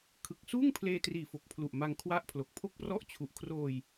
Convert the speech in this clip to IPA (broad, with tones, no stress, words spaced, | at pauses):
kʰɯ˨˩k̚suː˥˩ŋ pʰleː˧triː˨˩fo˨˩k̚ pʰlu˨˩ʔma˧ŋ kʰwa˦˥ʔ pʰlo˨˩k̚pʰo˥˩k̚prɔ˥˩ʔ t͡ɕʰu˨˩ʔkʰroː˧j